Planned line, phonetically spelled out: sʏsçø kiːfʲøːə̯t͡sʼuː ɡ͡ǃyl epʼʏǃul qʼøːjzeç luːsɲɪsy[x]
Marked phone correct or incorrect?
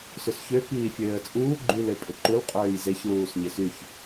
incorrect